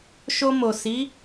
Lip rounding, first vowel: rounded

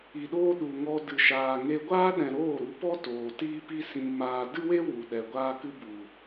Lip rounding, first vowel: unrounded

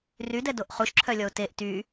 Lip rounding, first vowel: rounded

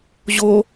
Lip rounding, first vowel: rounded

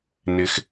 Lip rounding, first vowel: unrounded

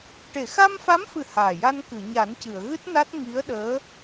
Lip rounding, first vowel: unrounded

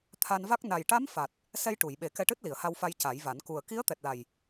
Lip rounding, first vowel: unrounded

